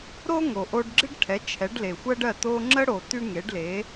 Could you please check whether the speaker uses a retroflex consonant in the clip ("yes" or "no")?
yes